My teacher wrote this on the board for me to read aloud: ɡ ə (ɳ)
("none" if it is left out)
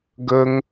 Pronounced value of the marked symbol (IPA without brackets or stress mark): ŋ